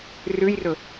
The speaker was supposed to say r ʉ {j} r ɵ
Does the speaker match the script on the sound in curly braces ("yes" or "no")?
yes